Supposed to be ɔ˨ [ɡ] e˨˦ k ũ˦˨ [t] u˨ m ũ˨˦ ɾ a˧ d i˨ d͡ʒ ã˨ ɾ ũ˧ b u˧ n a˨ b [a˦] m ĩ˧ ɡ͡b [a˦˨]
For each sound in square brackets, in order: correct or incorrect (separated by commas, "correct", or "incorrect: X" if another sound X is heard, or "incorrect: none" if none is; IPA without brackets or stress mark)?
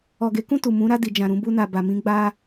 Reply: correct, correct, incorrect: a˨, incorrect: a˧